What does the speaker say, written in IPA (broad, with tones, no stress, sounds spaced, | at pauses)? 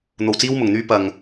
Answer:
n̪ o˧ w t͡s iː˥ w m ʊ˨ ŋ n̪ yː˥ p ɐ˧ ŋ